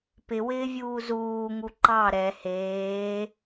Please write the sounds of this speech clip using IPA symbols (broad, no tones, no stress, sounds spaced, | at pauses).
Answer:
p ɪ w ɪː vʲ uː z uː ŋ u ǃ ɑ ɾ ɛ h eː